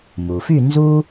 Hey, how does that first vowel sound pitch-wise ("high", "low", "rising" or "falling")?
low